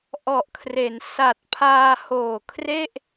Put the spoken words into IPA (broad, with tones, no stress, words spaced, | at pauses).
ʔɔ˨˩ʔkʰre˩˦n sa˨˩t̚ pʰaː˧hoː˨˩kʰre˥˩ʔ